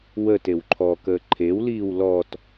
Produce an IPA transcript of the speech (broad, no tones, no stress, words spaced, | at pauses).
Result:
wət ewǃʰɔkəː ǃʰew liːwlɔt